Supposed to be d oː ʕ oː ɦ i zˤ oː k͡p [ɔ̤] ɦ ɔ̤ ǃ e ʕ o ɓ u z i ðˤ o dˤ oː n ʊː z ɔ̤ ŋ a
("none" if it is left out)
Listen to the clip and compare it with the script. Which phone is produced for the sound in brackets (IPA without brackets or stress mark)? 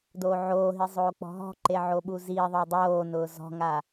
ɔ̤